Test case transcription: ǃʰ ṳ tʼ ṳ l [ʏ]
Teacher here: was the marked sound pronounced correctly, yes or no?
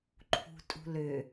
yes